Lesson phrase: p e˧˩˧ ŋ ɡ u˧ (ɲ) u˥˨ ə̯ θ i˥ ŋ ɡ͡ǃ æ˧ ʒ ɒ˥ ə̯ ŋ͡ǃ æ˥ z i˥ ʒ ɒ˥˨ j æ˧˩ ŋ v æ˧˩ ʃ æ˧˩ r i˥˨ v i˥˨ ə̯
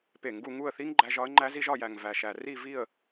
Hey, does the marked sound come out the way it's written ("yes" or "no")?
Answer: no